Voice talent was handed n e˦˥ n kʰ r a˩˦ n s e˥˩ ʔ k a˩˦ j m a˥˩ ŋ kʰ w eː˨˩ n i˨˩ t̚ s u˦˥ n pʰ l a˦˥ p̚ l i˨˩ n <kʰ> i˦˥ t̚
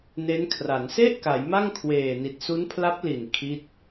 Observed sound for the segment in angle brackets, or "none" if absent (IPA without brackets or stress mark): kʰ